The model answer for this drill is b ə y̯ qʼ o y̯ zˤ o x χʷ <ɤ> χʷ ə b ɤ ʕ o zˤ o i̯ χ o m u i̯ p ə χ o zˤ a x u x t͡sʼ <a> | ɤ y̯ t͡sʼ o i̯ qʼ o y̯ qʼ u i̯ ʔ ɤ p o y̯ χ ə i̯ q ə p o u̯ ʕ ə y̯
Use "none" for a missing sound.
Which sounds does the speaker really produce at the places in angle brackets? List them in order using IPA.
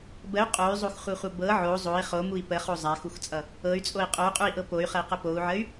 ɤ, ʌ

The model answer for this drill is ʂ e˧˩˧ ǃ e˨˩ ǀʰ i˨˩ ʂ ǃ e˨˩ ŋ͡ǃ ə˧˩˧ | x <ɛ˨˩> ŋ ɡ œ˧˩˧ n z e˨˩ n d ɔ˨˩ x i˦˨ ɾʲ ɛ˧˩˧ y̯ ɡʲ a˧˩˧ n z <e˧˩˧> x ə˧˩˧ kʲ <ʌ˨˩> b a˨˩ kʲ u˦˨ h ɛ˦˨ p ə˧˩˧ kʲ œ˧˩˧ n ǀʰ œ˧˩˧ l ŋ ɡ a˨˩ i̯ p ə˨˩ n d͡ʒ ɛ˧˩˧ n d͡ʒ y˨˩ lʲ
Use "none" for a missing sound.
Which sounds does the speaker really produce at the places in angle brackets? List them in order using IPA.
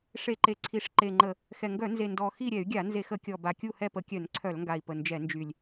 ɛ˨˩, e˧˩˧, ɔ˨˩

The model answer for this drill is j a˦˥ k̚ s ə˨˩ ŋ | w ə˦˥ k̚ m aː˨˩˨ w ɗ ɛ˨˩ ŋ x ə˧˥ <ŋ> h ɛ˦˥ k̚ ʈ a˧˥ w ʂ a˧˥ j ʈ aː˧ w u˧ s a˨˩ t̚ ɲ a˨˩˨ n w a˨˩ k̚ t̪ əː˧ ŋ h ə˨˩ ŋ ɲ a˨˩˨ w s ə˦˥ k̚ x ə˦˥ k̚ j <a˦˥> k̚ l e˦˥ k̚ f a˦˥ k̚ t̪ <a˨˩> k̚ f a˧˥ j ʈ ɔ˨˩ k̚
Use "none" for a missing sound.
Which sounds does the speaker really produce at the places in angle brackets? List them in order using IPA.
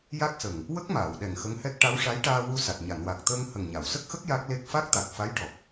ŋ, a˦˥, a˨˩

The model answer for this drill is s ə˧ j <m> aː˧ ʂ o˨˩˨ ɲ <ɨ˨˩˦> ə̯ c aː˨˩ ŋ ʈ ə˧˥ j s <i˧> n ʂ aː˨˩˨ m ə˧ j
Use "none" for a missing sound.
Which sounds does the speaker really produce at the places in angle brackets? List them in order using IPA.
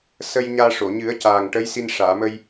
ɲ, ɨ˨˩˦, i˧

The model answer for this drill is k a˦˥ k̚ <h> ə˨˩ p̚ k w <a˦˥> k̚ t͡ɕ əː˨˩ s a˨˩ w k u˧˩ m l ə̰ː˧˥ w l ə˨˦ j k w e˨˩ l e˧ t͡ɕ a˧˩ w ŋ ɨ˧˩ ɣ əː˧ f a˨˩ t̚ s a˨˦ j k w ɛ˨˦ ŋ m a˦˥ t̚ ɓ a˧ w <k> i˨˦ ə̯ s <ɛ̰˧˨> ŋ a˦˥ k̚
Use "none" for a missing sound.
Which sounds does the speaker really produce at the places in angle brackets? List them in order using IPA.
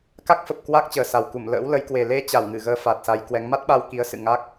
f, a˦˥, k, ɨ̰˧˨

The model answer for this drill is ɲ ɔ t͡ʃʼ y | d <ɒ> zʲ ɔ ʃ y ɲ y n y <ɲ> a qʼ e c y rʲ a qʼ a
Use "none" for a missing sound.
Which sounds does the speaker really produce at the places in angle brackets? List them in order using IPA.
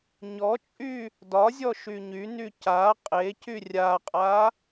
ɒ, c

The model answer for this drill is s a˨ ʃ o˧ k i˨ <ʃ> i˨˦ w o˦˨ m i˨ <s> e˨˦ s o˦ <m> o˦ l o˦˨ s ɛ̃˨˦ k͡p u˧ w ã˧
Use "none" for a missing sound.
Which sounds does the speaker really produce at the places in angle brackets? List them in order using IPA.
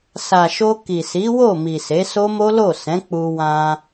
s, s, m

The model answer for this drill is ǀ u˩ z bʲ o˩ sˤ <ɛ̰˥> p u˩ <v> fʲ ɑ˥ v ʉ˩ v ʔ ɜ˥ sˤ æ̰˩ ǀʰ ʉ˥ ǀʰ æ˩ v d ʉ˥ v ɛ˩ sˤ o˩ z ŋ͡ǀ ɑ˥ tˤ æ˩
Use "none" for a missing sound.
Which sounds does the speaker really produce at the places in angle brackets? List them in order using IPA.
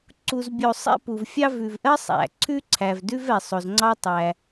ɛ̰˥, v

